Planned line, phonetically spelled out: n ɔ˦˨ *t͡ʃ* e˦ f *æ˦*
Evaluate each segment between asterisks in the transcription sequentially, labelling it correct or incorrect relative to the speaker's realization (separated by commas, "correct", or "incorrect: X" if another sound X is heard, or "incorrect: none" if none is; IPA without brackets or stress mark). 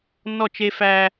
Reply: correct, correct